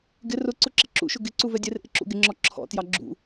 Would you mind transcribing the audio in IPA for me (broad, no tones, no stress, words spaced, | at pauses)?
ɡɪ rʊǀʊ ǁɪǁṵʃʊ ɡɪǀu vɛdʲɛrʔɪ ǁṵɡɪŋ͡ǁɔ ǁʰɔ̰tjɑ ɡ͡ǁṵ